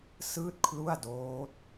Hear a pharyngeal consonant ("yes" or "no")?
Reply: no